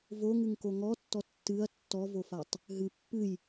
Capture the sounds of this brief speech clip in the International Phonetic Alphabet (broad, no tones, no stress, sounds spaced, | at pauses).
v o ŋ ɨ ŋ k o ŋ ɔ tː ɔ tː ɨ ɐ̯ tː ɔ v o f a tˤ | ɦ ɨ pː ɨ j